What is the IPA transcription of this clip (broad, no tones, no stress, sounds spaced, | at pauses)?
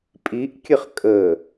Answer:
pʼ i ʔ kʲ ə χ kʼ ə